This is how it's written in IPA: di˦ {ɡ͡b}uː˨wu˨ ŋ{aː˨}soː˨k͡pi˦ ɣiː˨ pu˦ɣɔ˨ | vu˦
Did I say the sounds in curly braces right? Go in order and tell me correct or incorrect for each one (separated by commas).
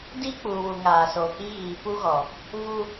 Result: incorrect, correct